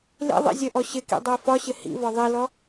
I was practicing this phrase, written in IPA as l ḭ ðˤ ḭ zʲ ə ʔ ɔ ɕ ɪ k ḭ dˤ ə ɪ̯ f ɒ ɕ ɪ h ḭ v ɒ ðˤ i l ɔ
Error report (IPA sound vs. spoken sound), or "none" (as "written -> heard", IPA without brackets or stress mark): none